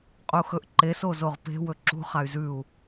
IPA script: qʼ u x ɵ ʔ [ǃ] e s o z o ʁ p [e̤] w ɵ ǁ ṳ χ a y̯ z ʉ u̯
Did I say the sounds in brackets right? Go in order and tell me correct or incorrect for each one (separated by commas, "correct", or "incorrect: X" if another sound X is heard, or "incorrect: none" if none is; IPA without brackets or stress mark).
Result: correct, correct